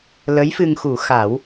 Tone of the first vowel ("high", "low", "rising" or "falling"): rising